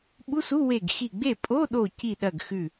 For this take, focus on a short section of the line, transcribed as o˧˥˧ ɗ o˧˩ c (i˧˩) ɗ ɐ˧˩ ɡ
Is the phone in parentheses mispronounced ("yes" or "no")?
no